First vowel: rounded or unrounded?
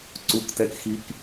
rounded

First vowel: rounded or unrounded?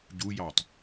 rounded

